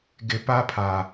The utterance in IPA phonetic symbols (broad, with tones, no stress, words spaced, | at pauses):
ɡɪ˨˦ pa˦pʰa˨